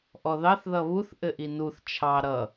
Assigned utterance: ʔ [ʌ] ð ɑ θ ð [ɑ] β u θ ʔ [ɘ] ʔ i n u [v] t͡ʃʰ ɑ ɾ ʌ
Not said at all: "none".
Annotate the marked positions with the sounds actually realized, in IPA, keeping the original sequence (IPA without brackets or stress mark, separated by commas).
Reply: ɔ, ʌ, ɘ, θ